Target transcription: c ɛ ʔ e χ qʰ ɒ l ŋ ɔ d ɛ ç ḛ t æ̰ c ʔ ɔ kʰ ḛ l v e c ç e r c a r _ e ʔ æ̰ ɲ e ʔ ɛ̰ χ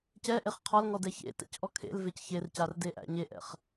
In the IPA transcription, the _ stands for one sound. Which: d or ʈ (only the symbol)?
d